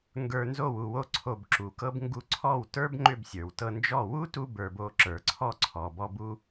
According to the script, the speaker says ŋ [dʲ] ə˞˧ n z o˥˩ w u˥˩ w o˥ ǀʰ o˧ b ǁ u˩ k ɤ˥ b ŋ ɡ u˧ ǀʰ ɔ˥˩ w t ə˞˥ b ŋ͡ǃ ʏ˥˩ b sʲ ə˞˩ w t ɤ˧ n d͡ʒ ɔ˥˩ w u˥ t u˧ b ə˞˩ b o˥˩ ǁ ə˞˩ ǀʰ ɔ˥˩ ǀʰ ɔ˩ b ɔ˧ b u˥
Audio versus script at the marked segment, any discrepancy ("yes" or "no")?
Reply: yes